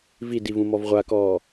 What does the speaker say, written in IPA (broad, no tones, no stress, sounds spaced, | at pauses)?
v i d i v ũ m ɔ v ʁʷ a k ɔː